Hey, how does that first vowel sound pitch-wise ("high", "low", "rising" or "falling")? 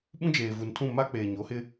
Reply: high